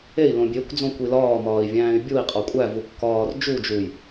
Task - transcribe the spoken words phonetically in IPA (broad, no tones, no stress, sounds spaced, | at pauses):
e i̯ l õ bʲ e kʷ d͡z õ kʷ i l ɒː m ɒː i̯ vʲ æ̃ː y̯ bʲ u i̯ qʼ ɒ kʷʼ æ v u kː ɒː r d͡ʒ u d͡ʒ u j